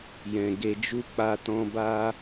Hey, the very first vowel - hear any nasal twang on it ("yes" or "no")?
yes